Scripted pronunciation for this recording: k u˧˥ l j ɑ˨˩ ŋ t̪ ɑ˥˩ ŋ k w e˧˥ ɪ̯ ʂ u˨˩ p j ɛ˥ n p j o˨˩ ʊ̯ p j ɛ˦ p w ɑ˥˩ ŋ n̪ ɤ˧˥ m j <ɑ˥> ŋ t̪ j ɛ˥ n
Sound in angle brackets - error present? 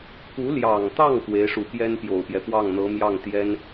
yes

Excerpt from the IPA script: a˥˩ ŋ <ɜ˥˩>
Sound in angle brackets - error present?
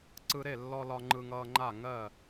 no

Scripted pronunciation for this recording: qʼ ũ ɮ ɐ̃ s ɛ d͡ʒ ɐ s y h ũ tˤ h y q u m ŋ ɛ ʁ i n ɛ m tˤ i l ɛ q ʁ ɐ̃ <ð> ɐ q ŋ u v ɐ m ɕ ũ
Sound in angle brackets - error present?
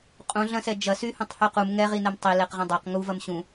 yes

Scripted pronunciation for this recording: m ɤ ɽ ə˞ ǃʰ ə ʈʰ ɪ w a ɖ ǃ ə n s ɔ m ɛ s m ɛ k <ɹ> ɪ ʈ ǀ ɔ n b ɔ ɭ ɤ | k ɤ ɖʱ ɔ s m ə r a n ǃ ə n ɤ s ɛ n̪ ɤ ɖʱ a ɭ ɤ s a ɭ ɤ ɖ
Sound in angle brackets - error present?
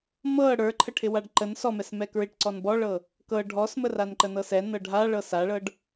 no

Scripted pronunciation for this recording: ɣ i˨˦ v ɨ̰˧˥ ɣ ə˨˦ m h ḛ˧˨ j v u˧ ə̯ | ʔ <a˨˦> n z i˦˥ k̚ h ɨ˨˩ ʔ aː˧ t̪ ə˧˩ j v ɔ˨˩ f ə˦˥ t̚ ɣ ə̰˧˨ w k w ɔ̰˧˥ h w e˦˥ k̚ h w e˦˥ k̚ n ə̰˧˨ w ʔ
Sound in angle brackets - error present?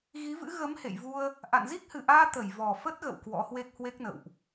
yes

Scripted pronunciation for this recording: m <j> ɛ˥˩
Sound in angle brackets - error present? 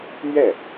yes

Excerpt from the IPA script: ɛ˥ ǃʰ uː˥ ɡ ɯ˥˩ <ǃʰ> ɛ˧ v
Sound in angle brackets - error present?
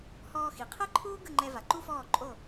yes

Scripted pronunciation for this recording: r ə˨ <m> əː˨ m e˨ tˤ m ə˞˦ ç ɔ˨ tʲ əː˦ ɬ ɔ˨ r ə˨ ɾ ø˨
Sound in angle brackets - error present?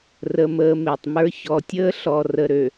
no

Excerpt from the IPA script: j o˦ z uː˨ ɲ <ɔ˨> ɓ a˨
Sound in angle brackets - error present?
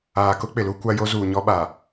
yes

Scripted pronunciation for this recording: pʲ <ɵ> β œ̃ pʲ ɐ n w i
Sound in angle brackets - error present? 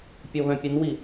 yes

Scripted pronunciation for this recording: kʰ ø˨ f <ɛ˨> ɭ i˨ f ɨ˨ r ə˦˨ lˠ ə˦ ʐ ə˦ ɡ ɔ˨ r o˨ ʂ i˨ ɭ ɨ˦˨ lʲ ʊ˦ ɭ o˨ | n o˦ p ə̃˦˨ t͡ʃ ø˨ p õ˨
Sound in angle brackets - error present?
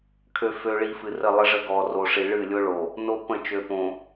yes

